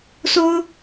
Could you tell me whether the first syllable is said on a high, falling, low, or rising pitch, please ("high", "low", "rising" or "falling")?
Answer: high